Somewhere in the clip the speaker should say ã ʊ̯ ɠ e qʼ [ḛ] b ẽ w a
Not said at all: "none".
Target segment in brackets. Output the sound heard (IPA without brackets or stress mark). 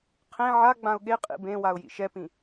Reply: ḭ